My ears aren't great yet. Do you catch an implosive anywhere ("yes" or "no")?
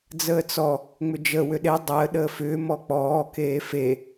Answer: yes